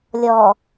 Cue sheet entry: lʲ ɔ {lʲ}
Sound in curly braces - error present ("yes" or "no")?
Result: yes